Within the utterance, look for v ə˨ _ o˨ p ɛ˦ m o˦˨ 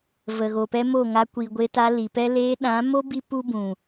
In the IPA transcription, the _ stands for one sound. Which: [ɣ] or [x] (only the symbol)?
ɣ